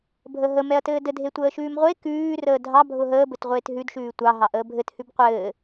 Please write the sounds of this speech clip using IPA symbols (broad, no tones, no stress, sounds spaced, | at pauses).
bʱ ə ɦ ə m ɛ ɐ̯ t ɘː d ɘ dʱ e tʷ əː ʃ ʉː m ʁʷ e k ʉː r əː dʱ ɑ bʱ ʊ ɦ əː b ɘ t ʁʷ eː t ɦ ʉ d ʃ ʉː tʷ ɑ ɦ ɑ ʔ əː bʱ ɘ t h ʉ b qʷ ɘː